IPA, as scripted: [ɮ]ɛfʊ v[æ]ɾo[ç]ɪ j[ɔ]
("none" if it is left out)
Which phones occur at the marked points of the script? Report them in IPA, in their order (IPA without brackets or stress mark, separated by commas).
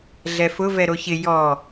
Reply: ɮ, ɛ, ç, ɔ